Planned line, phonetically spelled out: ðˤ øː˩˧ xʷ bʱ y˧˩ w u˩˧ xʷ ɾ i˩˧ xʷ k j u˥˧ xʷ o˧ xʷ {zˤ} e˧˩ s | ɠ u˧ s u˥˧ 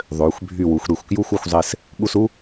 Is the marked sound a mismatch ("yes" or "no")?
no